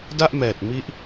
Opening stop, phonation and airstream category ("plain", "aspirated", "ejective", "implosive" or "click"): plain